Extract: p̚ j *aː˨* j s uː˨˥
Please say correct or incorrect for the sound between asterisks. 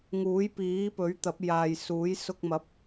correct